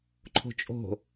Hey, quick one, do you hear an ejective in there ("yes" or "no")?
yes